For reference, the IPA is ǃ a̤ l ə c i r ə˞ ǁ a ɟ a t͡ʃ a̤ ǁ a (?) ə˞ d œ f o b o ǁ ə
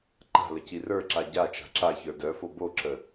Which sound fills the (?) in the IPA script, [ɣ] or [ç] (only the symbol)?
ç